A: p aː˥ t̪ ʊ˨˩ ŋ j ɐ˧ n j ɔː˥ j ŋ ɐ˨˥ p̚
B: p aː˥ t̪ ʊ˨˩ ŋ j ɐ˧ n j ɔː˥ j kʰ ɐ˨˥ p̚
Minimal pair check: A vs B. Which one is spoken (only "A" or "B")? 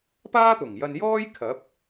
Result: B